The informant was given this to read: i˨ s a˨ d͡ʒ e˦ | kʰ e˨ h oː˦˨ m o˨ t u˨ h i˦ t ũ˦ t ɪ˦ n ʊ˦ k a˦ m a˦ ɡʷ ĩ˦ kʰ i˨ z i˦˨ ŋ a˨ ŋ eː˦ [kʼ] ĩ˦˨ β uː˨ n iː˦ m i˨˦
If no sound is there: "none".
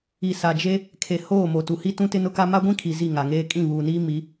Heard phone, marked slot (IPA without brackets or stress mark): kʼ